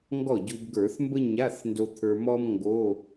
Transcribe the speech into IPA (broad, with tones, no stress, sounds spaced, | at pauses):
ŋ ɡ ɔ˥˩ ɟ u˧ b ɡ ə˞˧˩˧ θ m b ə˥ ɲ a˧˥˧ θ n d o˧ t̪ʰ ə˞˧ m ɔ˥ m ŋ ɡ o˧˥˧